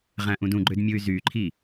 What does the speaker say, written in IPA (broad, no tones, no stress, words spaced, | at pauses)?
ʁæ̃ʔũdũɡ͡ǃød mʲuy̯zyǃʰi